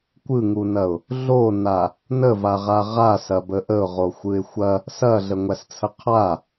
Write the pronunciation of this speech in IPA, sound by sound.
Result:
kʷɯŋunɐʊ̯ | ɮona | nəvaʁa ʁasɐbə ʔəʊ̯ʁoxʷɯɪ̯ xʷɐ | sɐɮəŋʷæst͡sʰə qʰa

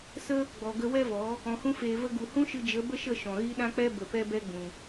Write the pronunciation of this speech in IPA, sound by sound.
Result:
sə˦ | ɡ͡bɔ˨ɡə˧ wɛ˦vɔ˨˦ | ɔ̃˨hũ˧feː˨və˧ ɡu˨hũ˦ʃɨ˧ d͡ʒə˨˦bə˦ʃə˦˨ ʃɔ̃˨ɣi˦ɗã˦k͡pɛ˦ bə˨pɛ˧bɛ˧ ɡ͡bũ˨

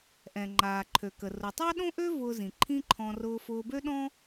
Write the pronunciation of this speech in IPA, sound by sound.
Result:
ʔɛ̃˩ ŋ͡ǃaː˩ǃʰø˩kə˩ rʊ˩tˤɑ˥ɗõ˥ʔø˥ vʊː˧zĩ˩ ǃʰĩ˥ǃʰɔ̃˧ rʊː˧fʊː˧bø˥ ɗɔ̃˥

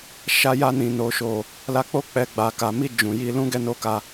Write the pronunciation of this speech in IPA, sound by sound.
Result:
ʃa˧ja˧nĩ˨ no˨˦ʃo˦˨ | la˧k͡po˦ k͡pɛ˧ɡ͡ba˨ka˨ mi˧ d͡ʒũ˨ji˧ lũ˧ ɡɛ˧no˧ka˧

